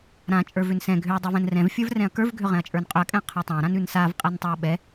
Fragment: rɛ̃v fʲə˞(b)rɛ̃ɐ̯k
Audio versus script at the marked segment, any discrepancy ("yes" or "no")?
yes